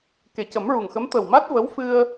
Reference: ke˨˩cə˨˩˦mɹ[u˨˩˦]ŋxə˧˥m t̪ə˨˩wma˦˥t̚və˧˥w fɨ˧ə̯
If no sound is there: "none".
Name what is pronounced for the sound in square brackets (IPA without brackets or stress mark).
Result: u˨˩